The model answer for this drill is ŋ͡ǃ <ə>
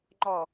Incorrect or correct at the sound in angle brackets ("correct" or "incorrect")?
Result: incorrect